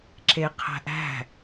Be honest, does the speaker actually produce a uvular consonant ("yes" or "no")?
yes